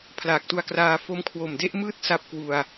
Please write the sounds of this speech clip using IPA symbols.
pʰ l aː˨˩ k̚ t u˧ a̯ k r aː˧ f o˦˥ m kʰ w o˨˩ m d e˦˥ ʔ m ɯː˥˩ t̚ s a˦˥ p̚ k w u˧ a̯

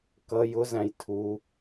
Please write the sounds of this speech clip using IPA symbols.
k ʌ j ʊ z æ̃ j tʰ u

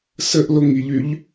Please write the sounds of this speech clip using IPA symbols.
s ə ʔ l o ŋ i ʎ y ʎ

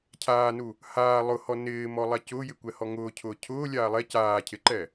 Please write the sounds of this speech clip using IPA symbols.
cʰ aː n u | h aː lˠ ʊ h ɔ n ɪː m ɔ lˠ a c ʊː j ɪ kʷ ɛ h ɔ ŋ ʊː cʰ ʊː cʰ ʊː lʲ aː lˠ ɛ c aː cʰ ɪ ǃ ɛ

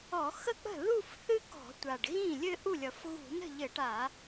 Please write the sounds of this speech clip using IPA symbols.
ɔ˧˩˧ x ə˥˩ k͡p ə̤˥˩ ð u˥˧ f θ ɨ˥ k ɔ̤˧˩˧ tʷ a˨˩ ɖ ɣ ĩ˥˩ lʲ ɘ˥˧ ʔ u˥˩ lʲ ʌ˨˩ f ɣ ṳ˧˩˧ n ə̤˥˩ ʎ ɘ˧˩˧ ʈ a˧˩˧

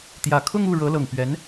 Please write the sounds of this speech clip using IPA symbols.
t̪ j ä˨˩ kʰ ʊ˥˧ ŋ u˥˩ ɻ ɤ˧˥ l ɤ˨˩ ŋ p ɥ ɛ˧˥ n

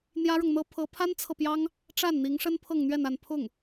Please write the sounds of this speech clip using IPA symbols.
n̪ j ä˥ ɻ ɤ˨ ŋ n̪ ɤ˥ pʰ ɤ˧˥ pʰ a˥ n t͡sʰ ɤ˨ p j ɑ˥ ŋ | ʈ͡ʂ a˥˩ n n̪ i˧˥ ŋ ʂ ə˥ n pʰ ɤ˥˧ ŋ n̪ ɥ ɛ˥˧ n a˥˧ n pʰ ʊ˥˩ ŋ

